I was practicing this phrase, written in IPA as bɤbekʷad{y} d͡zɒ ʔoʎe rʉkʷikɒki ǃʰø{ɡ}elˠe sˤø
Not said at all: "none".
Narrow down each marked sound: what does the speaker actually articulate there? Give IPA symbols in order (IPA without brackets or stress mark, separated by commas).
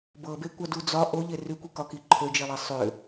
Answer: u, d͡ʒ